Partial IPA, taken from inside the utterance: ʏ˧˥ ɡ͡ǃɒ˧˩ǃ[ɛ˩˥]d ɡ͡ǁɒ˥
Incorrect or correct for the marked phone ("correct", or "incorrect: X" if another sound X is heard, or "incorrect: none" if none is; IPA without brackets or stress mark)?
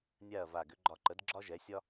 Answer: incorrect: ə˩˥